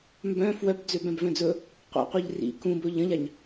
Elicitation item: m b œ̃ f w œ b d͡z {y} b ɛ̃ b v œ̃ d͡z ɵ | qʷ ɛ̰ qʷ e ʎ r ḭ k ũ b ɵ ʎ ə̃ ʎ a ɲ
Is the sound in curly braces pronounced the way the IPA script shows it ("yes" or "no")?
no